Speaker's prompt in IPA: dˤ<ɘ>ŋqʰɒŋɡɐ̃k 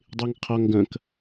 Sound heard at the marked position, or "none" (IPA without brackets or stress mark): e